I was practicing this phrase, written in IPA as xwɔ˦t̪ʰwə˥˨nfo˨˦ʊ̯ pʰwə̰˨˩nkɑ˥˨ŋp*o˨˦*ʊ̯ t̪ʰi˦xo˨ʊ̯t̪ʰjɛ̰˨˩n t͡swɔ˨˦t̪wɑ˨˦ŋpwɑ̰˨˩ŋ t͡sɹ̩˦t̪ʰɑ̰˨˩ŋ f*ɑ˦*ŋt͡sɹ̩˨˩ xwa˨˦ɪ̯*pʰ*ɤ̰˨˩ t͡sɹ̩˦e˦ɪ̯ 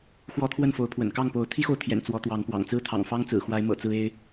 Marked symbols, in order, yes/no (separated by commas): yes, yes, no